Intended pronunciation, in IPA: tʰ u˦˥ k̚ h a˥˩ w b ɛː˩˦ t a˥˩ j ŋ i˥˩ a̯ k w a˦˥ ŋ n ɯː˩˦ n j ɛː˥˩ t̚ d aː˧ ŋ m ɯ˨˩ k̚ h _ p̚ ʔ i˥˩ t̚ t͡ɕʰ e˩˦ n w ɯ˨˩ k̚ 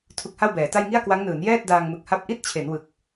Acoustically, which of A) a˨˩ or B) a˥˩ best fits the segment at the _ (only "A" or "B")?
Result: B